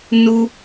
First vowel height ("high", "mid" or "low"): high